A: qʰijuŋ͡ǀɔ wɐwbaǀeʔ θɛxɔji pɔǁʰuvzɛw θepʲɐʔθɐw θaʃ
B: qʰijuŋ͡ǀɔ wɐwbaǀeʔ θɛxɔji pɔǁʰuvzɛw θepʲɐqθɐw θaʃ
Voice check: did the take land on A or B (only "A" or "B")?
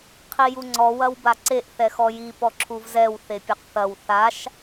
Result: B